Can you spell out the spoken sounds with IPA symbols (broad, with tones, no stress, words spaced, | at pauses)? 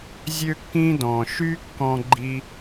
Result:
zʲø˥kːĩ˥dɔ̃˩ ʃy˥kːɔ̃˧ɡ͡ǃi˧